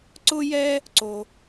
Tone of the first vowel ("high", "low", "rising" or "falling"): high